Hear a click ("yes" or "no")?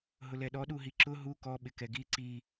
yes